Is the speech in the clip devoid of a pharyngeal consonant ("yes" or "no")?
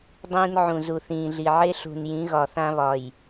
no